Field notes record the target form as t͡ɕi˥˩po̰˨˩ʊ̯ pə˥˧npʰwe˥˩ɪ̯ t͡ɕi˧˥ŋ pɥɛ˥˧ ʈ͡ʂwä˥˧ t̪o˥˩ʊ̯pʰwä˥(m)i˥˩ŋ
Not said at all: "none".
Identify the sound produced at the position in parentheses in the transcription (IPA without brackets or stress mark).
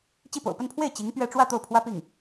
p